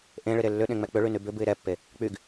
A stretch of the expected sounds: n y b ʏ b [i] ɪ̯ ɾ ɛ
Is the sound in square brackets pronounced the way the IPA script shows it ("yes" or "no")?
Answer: no